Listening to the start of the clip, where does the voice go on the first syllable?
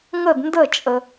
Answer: falling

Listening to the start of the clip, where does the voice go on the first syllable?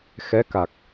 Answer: rising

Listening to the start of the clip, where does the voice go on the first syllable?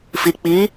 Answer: low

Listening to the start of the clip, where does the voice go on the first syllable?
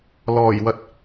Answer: low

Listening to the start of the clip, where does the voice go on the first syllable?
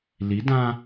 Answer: rising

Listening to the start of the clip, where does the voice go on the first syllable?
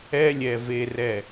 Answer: high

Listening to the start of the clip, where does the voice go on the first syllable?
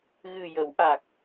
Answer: low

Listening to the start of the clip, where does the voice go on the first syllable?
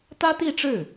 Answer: high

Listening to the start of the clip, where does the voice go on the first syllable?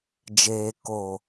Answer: low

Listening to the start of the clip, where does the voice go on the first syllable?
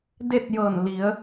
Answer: falling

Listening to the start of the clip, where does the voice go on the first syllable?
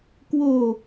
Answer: low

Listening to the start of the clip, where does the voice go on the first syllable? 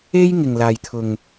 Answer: high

